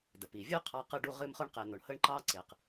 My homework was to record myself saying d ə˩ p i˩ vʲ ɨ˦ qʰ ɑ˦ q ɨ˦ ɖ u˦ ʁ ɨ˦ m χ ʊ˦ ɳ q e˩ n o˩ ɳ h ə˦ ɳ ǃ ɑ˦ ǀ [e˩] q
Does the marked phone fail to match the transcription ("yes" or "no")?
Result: no